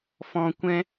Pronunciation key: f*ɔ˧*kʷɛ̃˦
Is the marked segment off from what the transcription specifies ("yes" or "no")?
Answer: yes